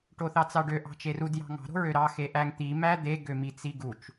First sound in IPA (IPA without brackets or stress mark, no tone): ʈ